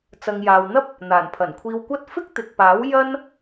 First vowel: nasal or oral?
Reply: oral